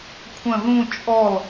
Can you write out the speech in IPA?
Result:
kʷʰə̃ ðũ t͡ʃʼɔl

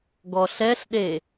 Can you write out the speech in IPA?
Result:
ɡɔɬɛɬɗe

